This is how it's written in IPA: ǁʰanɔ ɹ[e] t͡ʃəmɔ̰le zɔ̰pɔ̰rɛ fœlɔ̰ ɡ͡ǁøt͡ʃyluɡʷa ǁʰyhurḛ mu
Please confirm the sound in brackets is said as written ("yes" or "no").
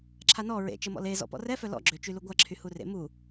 no